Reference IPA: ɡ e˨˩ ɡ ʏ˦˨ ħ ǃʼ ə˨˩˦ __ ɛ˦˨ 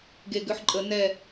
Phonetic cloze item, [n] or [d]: n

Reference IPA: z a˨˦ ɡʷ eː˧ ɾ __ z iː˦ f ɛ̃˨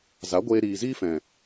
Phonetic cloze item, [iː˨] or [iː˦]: iː˨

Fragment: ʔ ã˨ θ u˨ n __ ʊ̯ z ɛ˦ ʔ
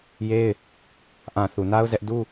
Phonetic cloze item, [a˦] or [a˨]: a˦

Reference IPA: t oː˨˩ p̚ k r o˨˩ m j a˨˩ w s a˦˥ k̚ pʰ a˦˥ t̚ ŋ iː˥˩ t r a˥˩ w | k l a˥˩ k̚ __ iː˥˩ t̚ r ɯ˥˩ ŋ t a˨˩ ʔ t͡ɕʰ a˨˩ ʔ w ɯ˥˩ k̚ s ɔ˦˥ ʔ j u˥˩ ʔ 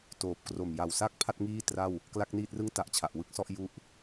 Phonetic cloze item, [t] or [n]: n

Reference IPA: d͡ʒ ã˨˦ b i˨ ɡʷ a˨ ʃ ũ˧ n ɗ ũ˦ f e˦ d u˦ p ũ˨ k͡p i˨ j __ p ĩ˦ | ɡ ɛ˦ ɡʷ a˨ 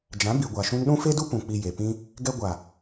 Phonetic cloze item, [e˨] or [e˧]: e˨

